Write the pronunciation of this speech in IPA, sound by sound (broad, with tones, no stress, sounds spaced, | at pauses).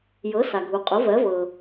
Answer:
j ɤ˩˥ s a˩ ɡʱ u˩ qʼ ʊ˩˥ v ɜ˩˥ v ɤ˩